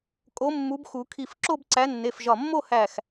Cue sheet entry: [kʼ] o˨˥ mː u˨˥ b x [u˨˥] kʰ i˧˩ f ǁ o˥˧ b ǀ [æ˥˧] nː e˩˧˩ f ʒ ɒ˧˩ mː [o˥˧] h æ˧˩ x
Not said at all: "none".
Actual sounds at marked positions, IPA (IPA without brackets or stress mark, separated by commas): kʼ, u˨˩˦, æ˨˥, o˥˧